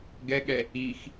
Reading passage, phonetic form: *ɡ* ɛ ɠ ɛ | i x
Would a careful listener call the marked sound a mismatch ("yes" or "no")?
no